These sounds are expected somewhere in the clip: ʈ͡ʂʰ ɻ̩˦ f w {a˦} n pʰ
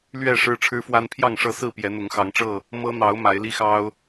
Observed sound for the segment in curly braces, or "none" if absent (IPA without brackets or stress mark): a˦